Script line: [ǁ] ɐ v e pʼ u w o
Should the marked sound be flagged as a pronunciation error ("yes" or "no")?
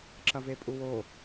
no